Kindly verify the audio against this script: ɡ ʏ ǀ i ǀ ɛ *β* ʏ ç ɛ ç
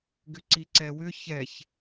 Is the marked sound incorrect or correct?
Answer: incorrect